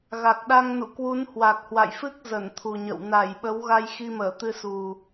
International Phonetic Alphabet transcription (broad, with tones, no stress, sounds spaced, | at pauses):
ɣ a˨˩ k̚ ɗ a˧ ŋ n ṵ˧˨ k w u˨˦ n h w a˨˩ k̚ h w a̰˧˨ j f ɨ˦˥ k̚ z ə˧˩ n t̪ʰ u˨˩ ɲ ə̰˧˨ w n a˧˩ j ɓ ə˨˦ w ɣ a˧ j x i˧ m əː˧˩ t̪ ɨ˧ s u˨˩